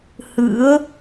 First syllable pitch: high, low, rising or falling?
rising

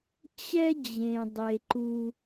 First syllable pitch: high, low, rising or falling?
high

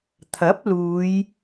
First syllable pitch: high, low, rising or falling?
rising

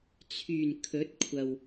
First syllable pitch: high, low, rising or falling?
low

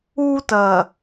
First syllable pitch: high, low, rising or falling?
high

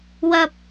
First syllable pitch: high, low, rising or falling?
high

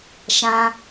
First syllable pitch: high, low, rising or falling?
high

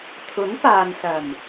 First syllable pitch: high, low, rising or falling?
rising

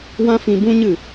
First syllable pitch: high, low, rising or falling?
high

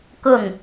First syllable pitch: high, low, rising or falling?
falling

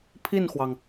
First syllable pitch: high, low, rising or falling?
falling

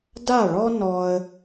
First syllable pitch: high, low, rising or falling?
falling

